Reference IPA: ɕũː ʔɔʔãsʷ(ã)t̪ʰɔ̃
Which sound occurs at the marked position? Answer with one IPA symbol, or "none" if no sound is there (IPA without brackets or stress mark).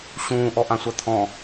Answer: a